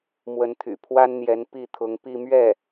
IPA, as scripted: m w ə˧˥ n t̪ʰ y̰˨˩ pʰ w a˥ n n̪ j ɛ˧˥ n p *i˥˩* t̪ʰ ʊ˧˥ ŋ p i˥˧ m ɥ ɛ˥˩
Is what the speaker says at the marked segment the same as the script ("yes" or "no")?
yes